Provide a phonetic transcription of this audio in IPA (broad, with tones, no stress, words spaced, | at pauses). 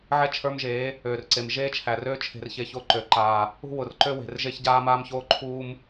ʕɛ˦t͡ʃʰə˞˦mʒeː˨˦ | øː˨rǀe˨m ʒeː˦t͡ʃʰæ˨røː˦ t͡ʃʰe̤˨rçeː˨ço˦˨ ǃø˨ ǃaː˨ | ṳ˦wʊ˨rǃø˦we̤˨r ʒe˦çɟaː˦maː˦mçoː˦ ǃʰuː˦m